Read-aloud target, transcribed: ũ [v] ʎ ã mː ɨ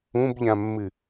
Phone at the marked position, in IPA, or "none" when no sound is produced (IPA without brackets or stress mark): b